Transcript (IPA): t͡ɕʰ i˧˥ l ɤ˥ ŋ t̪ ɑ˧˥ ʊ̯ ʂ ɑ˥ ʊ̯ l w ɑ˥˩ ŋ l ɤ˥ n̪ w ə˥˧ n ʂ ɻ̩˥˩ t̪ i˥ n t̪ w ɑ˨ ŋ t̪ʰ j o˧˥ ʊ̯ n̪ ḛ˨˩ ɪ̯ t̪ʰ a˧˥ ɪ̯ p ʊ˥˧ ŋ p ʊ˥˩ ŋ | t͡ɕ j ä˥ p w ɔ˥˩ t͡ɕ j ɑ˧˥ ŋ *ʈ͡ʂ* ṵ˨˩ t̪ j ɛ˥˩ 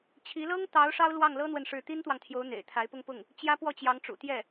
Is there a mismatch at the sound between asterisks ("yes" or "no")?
no